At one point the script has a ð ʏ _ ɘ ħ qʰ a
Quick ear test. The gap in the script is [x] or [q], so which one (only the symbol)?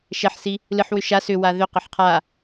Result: q